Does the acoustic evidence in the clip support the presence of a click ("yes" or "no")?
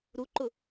yes